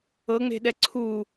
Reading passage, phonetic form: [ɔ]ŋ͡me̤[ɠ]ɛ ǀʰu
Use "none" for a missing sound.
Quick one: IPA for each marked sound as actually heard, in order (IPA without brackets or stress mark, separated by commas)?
ɤ, ɗ